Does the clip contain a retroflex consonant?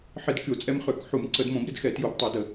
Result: no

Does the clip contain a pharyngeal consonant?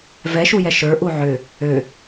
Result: yes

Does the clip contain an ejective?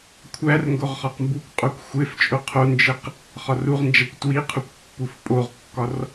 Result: yes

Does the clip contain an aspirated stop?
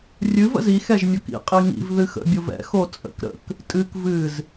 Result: no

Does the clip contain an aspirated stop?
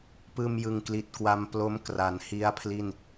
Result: yes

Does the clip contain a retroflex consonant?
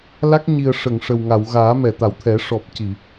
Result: yes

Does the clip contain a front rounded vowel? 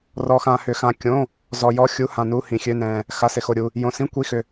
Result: yes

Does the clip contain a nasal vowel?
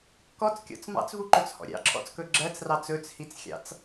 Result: no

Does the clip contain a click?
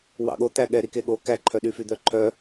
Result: yes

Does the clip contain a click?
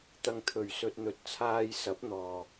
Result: no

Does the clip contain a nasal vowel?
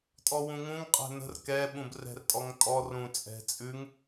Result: yes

